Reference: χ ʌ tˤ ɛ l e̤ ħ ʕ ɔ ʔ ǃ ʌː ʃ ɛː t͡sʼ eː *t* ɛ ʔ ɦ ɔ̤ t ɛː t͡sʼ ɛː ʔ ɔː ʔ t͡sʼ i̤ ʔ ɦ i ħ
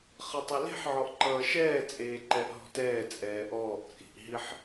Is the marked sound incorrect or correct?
incorrect